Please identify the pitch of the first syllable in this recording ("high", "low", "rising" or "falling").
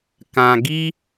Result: low